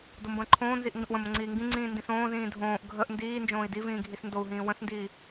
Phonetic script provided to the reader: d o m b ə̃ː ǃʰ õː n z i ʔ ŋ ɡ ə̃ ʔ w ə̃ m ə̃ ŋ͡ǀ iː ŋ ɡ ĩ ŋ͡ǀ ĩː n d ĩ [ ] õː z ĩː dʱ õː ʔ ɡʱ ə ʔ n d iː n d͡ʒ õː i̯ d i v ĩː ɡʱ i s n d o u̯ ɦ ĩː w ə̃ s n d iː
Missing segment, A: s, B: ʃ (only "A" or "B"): A